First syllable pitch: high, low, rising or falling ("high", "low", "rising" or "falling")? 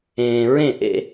low